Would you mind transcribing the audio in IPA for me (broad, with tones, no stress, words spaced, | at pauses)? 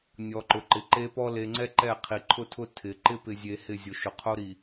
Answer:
nʲɔ˨ǃʊ˨ǃɪ˨ ǃe˦pɔ˦ le˨ŋ͡ǀɛ˦ ǃɛ˦˨ qʰi˨ǃʰʊ˦tʰʊ˦ tʰɪ˨ ǃɪ˦pɪ˨zʲe˨ hɪ˦˨ zʲo˨ʃʊ˨qʰo˦ɾi˨